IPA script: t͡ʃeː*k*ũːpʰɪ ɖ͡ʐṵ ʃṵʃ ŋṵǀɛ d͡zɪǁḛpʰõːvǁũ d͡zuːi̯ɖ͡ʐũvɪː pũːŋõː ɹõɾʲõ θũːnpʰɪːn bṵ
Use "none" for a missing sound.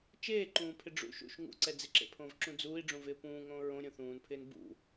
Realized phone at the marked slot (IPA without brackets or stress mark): ǃ